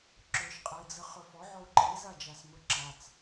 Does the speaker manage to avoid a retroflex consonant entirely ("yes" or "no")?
yes